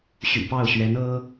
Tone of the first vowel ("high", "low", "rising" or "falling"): low